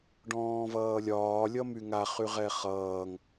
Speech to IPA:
ɖ ɔ̃ː v ʌː lʲ ɒː lʲ ʌ m y ŋ a χ y ʁ ɛ χ ʌː ŋ

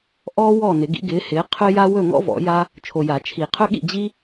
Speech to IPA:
ʔ ɔː˥ w ɔː˥˨ n ɪ˨˩˦ ɡ ḭ˨˦ ɡ ɪː˨˦ h ɪː˨˦ qʰ ɵ˥ j a˥ w ɵ˥˨ ŋ ɔ̰˥ v ɔ̰˨˩˦ j a˥ | t͡ʃʰ o˨ j a˨˩˦ t͡ʃʰ i˨˩˦ qʰ ɵ˥ ɠ ḭ˥˨ d͡ʑ i˥

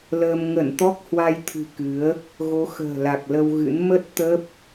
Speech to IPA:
l əː˧ m ŋ ə˧˩ n t̪ ɔ˦˥ k̚ h w a˧ j t̪ʰ ɨ̤˨˩ k ɨ˨˦ ə̯ | ɣ o˨˦ x ə̤ː˨˩ l a˨˩ k̚ l ə˧ w ɣ ɨ̰˧˥ n m ə˦˥ t̚ t̪ ə˦˥ p̚

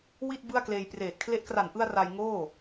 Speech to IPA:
w i˥˩ t̚ b ɯ˥˩ a̯ k l eː˧ j p r eː˨˩ t̚ kʰ l e˦˥ ʔ k r a˨˩ n ʔ ɯ˧ a̯ r a˧ j ŋ oː˥˩

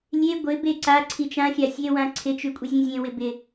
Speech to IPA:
lʲ e ɡʷ ɪ b e ǀ a ǀʰ i t͡ʃ ã xʲ a sʲ e w ã ǀʰ ɪ t͡ʃ ʉ kʷʼ e zʲ ẽ zʲ ẽ w ɪ b ɪ

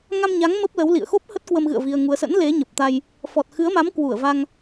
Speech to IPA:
ŋ a˧ m ɲ a˨˦ ŋ m ə˦˥ p̚ l ə˨˦ w l ḭ˧˨ ə̯ x o˦˥ p̚ h ə˦˥ t̚ k w ə˧ m ɣ ɨ̰˧˨ ə̯ v i˧ ə̯ ŋ u˧ ə̯ s ə̰˧˥ n l e˨˦ ɲ ə˨˩ p̚ t̪ a˧ j | f ɔ˨˩ t̚ x ɨ˨˦ ə̯ m a˨˦ m k w u˧˩ ə̯ v a˧ ŋ

